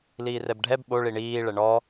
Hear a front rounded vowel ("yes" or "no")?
no